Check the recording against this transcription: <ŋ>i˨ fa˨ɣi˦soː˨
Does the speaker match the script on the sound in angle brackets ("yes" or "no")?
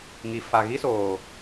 yes